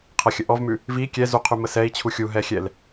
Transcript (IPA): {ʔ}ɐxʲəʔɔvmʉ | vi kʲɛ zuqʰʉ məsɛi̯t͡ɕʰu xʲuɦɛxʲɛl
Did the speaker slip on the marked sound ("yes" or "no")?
yes